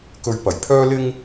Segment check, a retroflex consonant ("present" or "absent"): absent